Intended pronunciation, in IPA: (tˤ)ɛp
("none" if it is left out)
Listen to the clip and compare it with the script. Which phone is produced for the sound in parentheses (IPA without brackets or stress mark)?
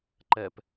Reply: ǃ